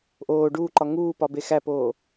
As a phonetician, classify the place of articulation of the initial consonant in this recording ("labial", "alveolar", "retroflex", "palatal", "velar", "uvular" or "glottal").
glottal